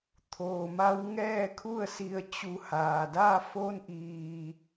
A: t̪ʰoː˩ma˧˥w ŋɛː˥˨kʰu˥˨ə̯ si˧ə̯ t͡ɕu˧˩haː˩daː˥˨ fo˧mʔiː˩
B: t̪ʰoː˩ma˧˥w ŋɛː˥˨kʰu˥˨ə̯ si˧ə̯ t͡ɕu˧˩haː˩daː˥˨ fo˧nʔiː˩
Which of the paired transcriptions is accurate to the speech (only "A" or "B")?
B